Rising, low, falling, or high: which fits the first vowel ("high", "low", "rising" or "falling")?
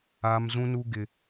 high